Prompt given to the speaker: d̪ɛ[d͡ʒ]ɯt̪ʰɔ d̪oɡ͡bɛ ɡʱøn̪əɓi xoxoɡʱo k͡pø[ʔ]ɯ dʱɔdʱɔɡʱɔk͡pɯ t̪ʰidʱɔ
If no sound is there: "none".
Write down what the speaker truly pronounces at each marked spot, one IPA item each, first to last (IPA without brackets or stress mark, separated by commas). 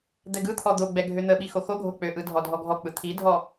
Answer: ɡ, ʔ